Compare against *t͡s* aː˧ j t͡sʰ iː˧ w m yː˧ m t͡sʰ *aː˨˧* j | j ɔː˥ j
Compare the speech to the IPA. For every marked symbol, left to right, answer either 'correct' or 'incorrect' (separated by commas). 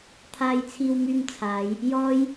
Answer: incorrect, correct